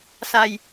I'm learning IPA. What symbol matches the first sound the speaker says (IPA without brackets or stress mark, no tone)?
s